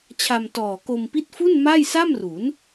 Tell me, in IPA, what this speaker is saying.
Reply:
t͡ɕʰ a˧ m t ɔː˨˩ k o˧ m p i˦˥ t̚ f u˥˩ n m a˥˩ j s a˥˩ m r u˩˦ n

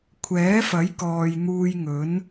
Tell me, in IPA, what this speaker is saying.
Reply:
kʷʰ ɛː˨˥ f ɐ˨˥ j k ɔː˨ j n̪ uː˧ j ŋ ɵ˨˥ n

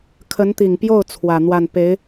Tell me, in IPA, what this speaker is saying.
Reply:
kʰ ə˧˥ n t̪ i˨˩ ŋ p j o˥˩ ʊ̯ t͡sʰ w ä˨˩ n̪ w a˥˩ n p e˧˥ ɪ̯

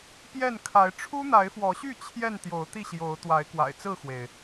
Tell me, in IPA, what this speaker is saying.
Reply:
p j ɛ˥˨ n kʰ a˨˦ ɪ̯ ʈ͡ʂʰ u˦ n̪ a˨˦ ɪ̯ f w ɔ˨˦ ɕ y˥˨ t͡ɕʰ j ɛ˥˨ n t̪ j o˨˦ ʊ̯ t̪ i˥˨ ɕ j o˨˦ ʊ̯ t̪ w a˨˦ ɪ̯ k w a̰˨˩ ɪ̯ t͡s ɹ̩˥˨ x w e˩ ɪ̯

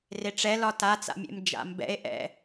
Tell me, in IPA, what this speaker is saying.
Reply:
r e ʈ͡ʂ ɛ l ɒ t a t͡s a̰ mʲ ḛ m d͡ʒ a̰ m b ɛ̰ e̯ ʔ ɛ̰

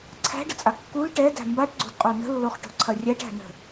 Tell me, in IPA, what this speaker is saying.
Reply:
ǀʰ æ̤ ɖ ə t͡sʼ a kː u l ʈ ɛ d æ̤ m b a ʈ ɡ͡ǀ o̤ d qʼ o n ə̤ lː o χ ʈ o̤ ǀʰ ɐ rʲ æ ʈ æ̤ n ə̤

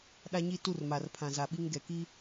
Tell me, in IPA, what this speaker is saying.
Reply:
ɗ a˦ ɲ i˦ t u˦˨ r m a˨ r pʰ ã˨ z a˨ ɓ i˦ ŋ ɡ ɛ˨ k i˦

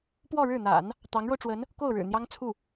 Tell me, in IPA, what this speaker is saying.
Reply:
p w ɔ˥˧ ɻ ɻ̩˥˩ n̪ a̰˨˩˦ n | t̪ ɑ˧˥ ŋ ɻ o˧ ʊ̯ ʈ͡ʂ w ə˧˥ n | k o˥˩ ʊ̯ ɻ ɻ̩˨˩ n̪ j ɑ˥ ŋ t͡sʰ u˥˩

